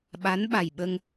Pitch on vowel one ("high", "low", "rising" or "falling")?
rising